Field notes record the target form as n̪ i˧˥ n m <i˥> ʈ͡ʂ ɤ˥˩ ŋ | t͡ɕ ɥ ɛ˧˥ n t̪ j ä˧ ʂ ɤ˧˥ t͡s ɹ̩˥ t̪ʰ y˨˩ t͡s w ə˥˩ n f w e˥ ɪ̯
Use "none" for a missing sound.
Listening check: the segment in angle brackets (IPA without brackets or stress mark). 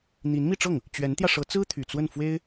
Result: i˥˧